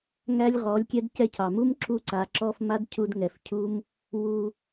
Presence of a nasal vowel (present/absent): absent